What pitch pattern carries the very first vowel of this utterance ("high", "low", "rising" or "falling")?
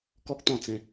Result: high